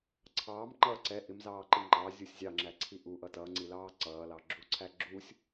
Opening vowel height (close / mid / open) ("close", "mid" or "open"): open